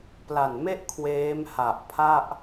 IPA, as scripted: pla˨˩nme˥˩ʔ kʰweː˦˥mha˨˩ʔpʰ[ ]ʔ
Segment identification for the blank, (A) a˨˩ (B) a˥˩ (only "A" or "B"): B